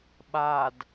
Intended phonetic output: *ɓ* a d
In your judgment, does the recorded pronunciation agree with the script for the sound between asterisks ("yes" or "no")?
yes